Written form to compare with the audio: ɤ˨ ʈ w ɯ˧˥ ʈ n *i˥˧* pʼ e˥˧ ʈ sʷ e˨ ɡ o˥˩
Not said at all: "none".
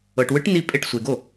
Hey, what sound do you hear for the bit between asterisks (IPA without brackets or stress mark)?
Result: i˥˧